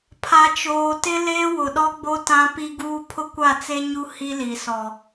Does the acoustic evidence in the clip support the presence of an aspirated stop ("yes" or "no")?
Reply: yes